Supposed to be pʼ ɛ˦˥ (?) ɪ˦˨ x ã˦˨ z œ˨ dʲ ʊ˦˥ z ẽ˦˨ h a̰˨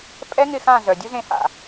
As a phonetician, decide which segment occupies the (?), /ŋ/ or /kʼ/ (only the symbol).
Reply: ŋ